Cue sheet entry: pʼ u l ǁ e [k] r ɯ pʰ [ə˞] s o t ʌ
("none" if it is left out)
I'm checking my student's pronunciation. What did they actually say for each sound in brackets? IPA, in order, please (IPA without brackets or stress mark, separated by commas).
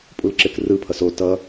k, ʌ